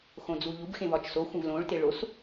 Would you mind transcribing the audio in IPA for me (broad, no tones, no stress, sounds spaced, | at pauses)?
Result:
x õ d͡z u ʎ u b x ẽ v ɒ t͡ʃ s o xʷ ẽ v l õ ɭ t e ɭ o s